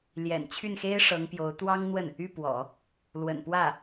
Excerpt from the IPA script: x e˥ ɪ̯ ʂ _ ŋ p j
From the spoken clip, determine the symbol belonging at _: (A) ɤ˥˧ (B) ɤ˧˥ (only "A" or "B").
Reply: B